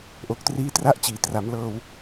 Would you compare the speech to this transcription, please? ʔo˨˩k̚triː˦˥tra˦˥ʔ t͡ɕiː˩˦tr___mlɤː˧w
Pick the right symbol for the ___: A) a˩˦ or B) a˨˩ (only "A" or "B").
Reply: A